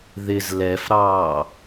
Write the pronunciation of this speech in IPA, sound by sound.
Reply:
ð ɪ z l ɛ f ɾ ɑː

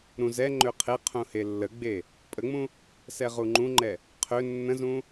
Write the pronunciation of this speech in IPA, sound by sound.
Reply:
ɾ ũ z ɛ ŋ͡ǃ ø qʰ e qʰ ũ h e lː ə ɡ͡b e | pʼ ə ŋ͡m ũ | s ɛ ʁ u ŋ͡ǃ ũ ŋ͡ǃ ɛ | qʰ ø nː ə̃ z ũ

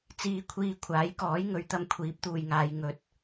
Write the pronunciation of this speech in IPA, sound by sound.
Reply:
t͡s iː˧ kʷʰ iː˧ kʷʰ aː˨˥ j k ɔː˨˥ j ŋ ɵ˨˧ ɥ t̪ ɐ˧ m kʷʰ iː˨˥ p̚ t̪ uː˨ j ŋ aː˨˧ j ŋ ɵ˨˥ t̚

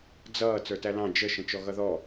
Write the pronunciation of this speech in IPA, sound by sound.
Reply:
d͡z ʌː t͡s ə˞ t æ l ɑ̃ d͡ʒ ə ʃ ə̃ t͡ʃ ɔ ɣ ʌ ð ɔ

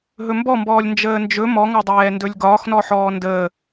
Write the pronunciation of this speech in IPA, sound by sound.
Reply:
ɦ ɵ m b ɔ m b ɔː lʲ n d͡ʒ əː n d͡ʒ ɵ m ɔ ŋ ɒ dˤ ɛː n d ɵ lʲ ɡ ɒː x n ɔ ħ ɔː n d əː

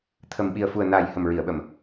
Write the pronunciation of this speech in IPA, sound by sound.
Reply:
t̪ʰ ə˨˩ m ɓ i˨˩ ə̯ f u˨˩ ə̯ n aː˨˩ j h ə˨˩ m ɹ i˨˩˨ ə̯ ɓ ə˨˩˨ m

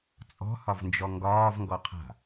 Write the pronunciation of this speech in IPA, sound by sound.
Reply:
t͡sʼ ɔ̤ h ɒ v n d͡ʒ ɔ ŋ ɡ ɒː v ŋ ɡ ɔ qʰ a̤

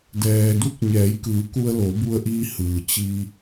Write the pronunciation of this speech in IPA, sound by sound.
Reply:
d ɛː˩ d u˧˥ k̚ ɲ ɛː˩˧ j k ɯː˩˧ k u˧ ə̯ l o˩˧ b u˧ ə̯ ʔ iː˧ h ɯː˩ t͡ɕ iː˧

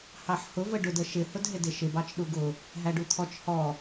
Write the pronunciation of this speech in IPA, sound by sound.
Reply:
h ɑ ħ h ʊ v ə ɖ ʊ d ə ʃ ɪ h ʊ d ɦ ɪ d ɪ ʃ ɪ b ɑ t͡ʃ ɗ u ɡ ʊ | ɦ æ ɖ u t̪ʰ ɔ t͡ʃ h ɔ

